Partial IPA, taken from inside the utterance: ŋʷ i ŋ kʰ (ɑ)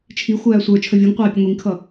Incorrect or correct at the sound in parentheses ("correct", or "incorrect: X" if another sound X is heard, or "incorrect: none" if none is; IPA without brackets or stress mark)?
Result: incorrect: ʌ